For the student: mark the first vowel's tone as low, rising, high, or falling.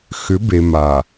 rising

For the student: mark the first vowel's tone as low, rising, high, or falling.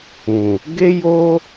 low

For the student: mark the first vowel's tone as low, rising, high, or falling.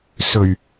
low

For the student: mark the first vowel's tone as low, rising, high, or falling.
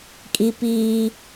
high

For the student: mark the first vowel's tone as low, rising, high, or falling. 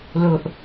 low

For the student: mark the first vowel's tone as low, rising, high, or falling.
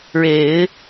low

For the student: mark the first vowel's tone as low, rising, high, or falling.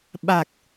low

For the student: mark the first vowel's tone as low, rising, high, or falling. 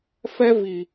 high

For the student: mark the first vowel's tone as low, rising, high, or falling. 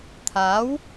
rising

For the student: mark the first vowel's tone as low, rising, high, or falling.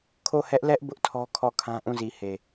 falling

